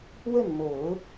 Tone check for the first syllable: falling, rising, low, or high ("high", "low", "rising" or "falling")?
falling